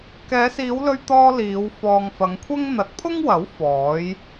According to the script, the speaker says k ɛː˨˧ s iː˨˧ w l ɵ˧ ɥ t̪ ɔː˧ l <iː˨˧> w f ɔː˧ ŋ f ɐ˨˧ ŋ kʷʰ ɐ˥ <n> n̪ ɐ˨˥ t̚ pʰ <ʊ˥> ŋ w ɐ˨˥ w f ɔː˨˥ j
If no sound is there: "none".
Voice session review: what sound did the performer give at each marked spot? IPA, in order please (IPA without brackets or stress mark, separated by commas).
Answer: iː˨˧, ŋ, ʊ˥